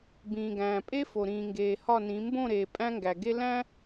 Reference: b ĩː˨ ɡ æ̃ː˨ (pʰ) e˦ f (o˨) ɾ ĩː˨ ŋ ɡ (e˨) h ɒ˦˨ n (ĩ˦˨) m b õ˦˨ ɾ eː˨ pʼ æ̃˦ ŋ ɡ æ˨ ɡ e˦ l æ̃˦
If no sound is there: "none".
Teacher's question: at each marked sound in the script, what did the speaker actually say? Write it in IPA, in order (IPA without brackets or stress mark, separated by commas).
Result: pʼ, o˨, eː˨, ĩ˨˦